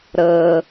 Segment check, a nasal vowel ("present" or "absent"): absent